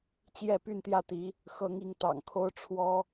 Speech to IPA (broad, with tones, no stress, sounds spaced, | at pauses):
t͡ɕ j ɛ˥˧ p y˥˧ n t̪ j ä˥˩ t̪ i˧˥ | x ɤ˧˥ ŋ i˧˥ ŋ t̪ ɑ̰˨˩ ŋ kʰ o˥ ʊ̯ ʈ͡ʂʰ w ɔ˥